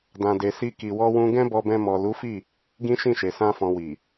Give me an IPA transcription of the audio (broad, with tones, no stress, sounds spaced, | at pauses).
d ã˨ d e˨ s i˧ k i˨ w ɔ˧ w ũ˧ ɡ ɛ̃˦ b ɔ˧ b ɛ̃˧ m ɔ˨ l u˨˦ f i˦˨ | ɡ ĩ˦ ʃ ĩ˦˨ ʃ e˨ s ã˧ f ɔ̃˨ w i˨